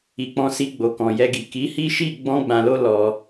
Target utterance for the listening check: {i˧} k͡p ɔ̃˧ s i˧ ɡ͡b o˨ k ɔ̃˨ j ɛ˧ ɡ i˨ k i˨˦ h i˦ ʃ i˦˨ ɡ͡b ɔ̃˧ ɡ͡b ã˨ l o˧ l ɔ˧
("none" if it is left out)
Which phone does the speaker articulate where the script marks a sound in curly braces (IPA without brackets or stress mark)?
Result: i˨